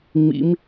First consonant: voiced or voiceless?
voiced